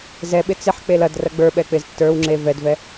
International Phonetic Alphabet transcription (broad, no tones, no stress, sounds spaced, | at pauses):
z ɛ ɓ ɪ t͡s ɪ ħ k͡p e l ɐ d r ɐ ɡ͡b ə˞ ɓ ɛ k͡p ɪ z tː ə˞ w ŋ͡ǁ e v ɛ d v ɛ